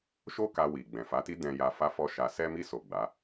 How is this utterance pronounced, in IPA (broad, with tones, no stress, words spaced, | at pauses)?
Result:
ʃo˦ka˧wi˨ ɡ͡bɛ̃˨fa˨˦ti˦dɛ̃˧ ja˧ fa˦fɔ˦ʃa˧ sɛ˧mi˧so˨ ɡ͡ba˨˦